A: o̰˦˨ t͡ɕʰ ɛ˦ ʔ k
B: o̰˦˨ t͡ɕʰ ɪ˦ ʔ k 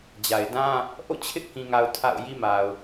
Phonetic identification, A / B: B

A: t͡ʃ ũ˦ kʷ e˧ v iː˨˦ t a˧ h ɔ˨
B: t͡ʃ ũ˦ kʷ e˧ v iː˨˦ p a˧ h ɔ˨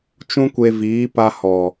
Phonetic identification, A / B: B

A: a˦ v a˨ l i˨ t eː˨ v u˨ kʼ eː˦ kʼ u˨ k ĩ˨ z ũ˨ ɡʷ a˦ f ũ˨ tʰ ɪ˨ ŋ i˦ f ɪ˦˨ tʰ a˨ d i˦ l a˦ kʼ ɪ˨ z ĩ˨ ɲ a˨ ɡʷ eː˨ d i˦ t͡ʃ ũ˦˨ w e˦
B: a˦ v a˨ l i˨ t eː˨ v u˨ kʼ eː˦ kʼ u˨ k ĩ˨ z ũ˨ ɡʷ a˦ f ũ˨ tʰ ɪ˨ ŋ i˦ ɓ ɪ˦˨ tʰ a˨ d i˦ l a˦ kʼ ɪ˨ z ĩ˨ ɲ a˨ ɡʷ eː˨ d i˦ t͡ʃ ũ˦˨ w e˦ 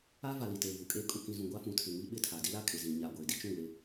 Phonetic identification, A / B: B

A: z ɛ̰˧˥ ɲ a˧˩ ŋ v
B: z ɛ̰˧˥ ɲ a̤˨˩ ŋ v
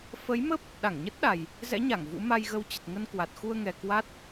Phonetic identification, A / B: A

